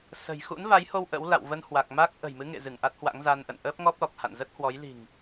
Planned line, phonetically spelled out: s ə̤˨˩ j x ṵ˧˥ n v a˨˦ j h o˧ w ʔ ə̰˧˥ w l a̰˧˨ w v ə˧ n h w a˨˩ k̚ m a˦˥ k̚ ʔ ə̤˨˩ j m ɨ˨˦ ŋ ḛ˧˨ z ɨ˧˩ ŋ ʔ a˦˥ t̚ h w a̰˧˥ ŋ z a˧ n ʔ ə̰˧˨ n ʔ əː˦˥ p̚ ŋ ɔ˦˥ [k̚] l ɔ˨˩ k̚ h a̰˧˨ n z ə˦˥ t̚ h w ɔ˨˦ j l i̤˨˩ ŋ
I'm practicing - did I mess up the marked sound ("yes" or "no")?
yes